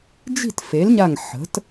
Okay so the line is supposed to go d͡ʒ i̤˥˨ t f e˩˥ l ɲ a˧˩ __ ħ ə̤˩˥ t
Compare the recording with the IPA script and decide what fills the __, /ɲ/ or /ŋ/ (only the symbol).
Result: ŋ